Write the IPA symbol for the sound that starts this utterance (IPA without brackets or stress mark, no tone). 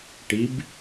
ʈ